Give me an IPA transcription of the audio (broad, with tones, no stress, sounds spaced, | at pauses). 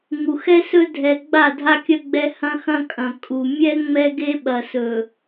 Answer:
ŋ u˨ x ɛ˦ s ɵ˦ dʱ ɛ˨ ɡ͡b a˦˨ dʱ a˦ kʲ ɐ˦ ɡ͡b ɛ˦ h ɐ̃˦ x ɐ̃˦ kʼ ɐ̃˨ kʼ u˨ mʲ ɛ˦ ŋ͡m ɛ˦ ɡ e˦ ɓ ɐ˨ s ɵ˨